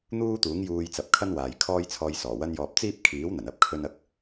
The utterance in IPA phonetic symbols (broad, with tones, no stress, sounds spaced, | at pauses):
n̪ uː˥ t̪ uː˨˥ ŋ j uː˧ j t͡s ɐ˨˥ p̚ kʰ ɐ˥ n w aː˨ j kʰ ɔː˥ j t͡sʰ ɔː˧ j s ɔː˨˩ w ɐ˥ n j ɔː˧ p̚ t͡s iː˥ p̚ kʰ iː˨˥ w n̪ ɐ˨˩ n ɐ˥ p̚ kʰ ɵ˥ n ɐ˥ k̚